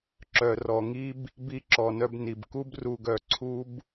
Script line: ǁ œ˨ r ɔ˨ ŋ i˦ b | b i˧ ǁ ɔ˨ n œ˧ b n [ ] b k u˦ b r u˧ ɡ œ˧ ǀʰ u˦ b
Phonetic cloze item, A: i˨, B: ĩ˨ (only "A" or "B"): A